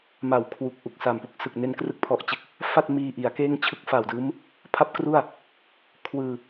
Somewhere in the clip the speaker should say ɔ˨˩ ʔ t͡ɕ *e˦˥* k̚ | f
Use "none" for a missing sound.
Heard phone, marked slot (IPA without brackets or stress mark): e˦˥